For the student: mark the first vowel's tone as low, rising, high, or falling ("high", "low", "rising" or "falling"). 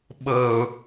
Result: low